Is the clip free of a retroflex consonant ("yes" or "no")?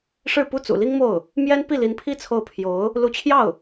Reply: no